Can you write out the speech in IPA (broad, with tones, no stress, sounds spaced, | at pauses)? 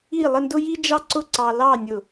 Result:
i˥˧ lˠ ə˥˧ n d ʊ˥ j i˥ d͡ʒ ɑ˥ ǀ ʊ˥˧ ǀ ɑ˧ l ɑ˥˧ nʲ ʊ˧˩